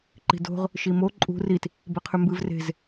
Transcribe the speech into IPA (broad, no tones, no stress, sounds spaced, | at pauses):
ǃ i̤ d o̤ ʁ | ʃ i m o ǃʼ ṳ r i t | b e qʰ ʉ m b ɨ v r e̤ z